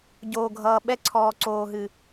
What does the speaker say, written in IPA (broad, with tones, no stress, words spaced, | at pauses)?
ɟoː˨ɡʱʌː˨ ɓɛ˦ǀʰɔː˨ ǀoː˨ɦɨ˨